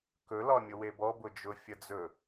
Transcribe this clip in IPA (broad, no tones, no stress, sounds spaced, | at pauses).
k ɵ l ɒ mʲ ʊ w e b ɔ b ʊ d͡ʒ ʊ fʲ ə d͡z ɵ